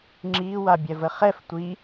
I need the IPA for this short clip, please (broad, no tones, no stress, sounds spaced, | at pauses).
ŋ͡ǁ iː w a bʲ ɛ v ə χ ɛ f tʷ i